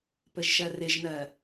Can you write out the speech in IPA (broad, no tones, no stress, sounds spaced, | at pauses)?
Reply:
p ɘ ʒ ʃ ɜ r ɪ ʒ n̪ ɜ